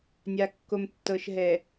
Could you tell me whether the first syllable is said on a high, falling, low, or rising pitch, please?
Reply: low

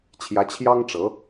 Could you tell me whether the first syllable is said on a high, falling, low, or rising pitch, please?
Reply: rising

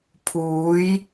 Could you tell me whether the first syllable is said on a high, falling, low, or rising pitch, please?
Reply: rising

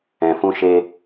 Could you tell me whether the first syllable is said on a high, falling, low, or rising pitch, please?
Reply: low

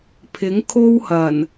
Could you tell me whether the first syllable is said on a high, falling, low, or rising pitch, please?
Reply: rising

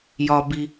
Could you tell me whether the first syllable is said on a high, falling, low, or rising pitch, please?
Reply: low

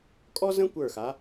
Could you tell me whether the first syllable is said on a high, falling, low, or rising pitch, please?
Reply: high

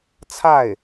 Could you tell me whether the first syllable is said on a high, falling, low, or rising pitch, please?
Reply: falling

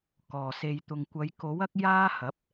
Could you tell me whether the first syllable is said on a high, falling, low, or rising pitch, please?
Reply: low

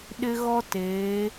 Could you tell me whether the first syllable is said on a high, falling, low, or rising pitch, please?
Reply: high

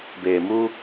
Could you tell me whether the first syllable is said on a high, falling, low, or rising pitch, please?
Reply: low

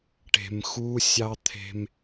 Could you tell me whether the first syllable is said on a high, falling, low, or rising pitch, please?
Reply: low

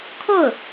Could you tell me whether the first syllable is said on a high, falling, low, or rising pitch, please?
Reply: falling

